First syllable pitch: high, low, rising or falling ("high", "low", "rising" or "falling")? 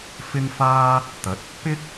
high